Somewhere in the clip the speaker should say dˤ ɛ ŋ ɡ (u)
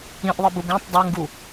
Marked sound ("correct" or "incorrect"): correct